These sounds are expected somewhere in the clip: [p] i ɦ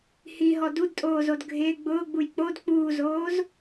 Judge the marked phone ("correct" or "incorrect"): incorrect